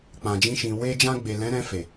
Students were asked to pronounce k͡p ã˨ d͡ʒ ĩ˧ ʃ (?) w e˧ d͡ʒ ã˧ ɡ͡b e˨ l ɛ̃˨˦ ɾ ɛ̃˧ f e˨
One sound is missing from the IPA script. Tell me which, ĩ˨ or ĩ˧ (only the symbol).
ĩ˨